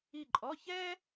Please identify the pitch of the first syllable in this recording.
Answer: falling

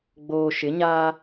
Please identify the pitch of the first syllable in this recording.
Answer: low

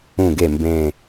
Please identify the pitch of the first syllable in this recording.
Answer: low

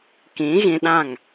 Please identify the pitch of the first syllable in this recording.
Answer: rising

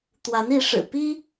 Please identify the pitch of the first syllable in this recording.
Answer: rising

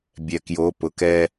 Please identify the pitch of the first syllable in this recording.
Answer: low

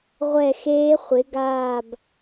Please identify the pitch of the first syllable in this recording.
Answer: falling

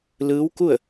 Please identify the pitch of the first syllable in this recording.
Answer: rising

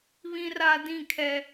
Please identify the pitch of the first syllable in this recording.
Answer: high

